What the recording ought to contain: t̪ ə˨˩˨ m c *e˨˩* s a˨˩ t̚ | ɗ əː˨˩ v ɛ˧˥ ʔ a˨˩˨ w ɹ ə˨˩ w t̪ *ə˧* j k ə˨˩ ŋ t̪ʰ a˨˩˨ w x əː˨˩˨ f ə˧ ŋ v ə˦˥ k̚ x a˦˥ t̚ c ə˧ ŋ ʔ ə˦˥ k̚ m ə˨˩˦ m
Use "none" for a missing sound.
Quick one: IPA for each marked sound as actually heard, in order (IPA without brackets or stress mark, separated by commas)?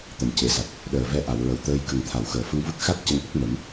e˨˩, əː˧